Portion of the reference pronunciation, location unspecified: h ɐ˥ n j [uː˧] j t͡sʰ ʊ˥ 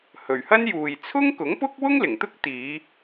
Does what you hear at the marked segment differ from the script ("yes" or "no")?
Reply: yes